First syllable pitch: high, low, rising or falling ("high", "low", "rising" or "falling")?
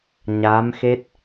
rising